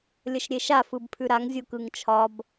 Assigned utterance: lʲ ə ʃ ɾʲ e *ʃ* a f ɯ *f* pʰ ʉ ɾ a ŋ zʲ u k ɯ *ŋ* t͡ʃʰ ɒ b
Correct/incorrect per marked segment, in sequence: correct, incorrect, correct

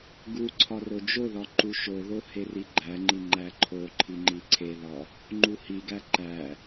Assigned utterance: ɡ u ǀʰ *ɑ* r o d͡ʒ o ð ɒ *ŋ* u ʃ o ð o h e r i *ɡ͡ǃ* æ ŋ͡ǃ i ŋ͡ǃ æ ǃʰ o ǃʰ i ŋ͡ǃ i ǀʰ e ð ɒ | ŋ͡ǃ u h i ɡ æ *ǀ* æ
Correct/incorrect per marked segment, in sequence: incorrect, incorrect, correct, incorrect

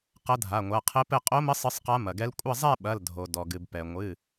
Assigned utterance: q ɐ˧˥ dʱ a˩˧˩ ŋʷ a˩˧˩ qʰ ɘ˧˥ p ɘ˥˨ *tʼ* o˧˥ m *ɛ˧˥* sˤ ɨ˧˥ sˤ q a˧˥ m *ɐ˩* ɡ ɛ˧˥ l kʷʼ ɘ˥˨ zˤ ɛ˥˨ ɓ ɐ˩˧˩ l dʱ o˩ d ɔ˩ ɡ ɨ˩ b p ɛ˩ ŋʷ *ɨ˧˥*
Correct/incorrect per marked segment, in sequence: incorrect, incorrect, correct, incorrect

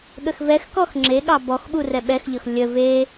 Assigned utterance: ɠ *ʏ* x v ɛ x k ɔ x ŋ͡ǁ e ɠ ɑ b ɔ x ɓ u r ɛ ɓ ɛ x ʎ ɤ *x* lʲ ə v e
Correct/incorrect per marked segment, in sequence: incorrect, correct

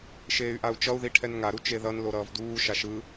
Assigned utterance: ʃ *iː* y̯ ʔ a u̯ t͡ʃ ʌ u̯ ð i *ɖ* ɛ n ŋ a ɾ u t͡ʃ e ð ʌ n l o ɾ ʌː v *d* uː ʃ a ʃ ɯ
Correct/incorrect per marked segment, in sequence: incorrect, incorrect, correct

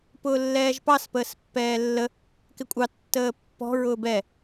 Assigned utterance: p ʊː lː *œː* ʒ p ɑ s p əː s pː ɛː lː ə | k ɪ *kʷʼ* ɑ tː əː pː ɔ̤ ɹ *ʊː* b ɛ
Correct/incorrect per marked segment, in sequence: incorrect, correct, correct

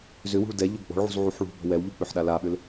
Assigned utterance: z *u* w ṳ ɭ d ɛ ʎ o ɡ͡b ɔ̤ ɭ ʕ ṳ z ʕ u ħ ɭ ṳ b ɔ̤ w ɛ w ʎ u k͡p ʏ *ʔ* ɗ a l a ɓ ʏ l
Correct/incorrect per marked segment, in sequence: incorrect, incorrect

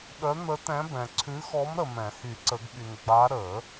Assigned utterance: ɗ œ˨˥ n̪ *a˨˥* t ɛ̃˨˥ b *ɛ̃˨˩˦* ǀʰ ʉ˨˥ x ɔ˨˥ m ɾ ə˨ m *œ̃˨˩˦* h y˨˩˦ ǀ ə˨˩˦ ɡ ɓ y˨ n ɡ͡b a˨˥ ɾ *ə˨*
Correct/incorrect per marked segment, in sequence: incorrect, incorrect, incorrect, incorrect

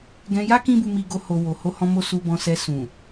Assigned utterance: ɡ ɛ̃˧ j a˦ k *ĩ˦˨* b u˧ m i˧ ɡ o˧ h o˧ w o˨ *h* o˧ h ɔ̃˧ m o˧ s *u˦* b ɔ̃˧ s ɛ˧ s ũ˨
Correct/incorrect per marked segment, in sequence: incorrect, correct, incorrect

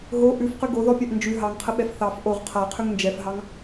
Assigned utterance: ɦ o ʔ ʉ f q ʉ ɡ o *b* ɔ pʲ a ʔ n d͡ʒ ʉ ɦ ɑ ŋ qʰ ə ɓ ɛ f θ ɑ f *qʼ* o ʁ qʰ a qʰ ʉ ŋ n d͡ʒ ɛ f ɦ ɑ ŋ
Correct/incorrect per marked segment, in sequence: incorrect, incorrect

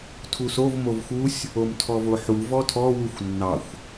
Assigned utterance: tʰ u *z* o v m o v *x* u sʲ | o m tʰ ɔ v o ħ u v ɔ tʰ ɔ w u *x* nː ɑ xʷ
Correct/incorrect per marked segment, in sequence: incorrect, correct, incorrect

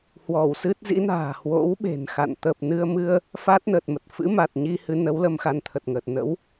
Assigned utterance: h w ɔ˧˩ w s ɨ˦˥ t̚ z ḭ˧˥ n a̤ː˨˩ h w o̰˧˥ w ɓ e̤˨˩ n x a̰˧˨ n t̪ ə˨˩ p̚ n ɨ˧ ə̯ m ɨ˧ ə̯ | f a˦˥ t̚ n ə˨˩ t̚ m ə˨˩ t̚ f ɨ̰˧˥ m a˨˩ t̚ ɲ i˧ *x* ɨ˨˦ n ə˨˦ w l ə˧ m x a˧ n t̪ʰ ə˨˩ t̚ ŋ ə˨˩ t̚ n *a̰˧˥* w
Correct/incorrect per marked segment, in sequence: incorrect, incorrect

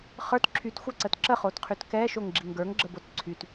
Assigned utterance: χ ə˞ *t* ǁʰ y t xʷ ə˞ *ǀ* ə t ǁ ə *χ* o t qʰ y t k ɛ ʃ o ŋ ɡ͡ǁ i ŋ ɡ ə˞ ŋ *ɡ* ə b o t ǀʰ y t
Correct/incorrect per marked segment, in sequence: correct, correct, correct, incorrect

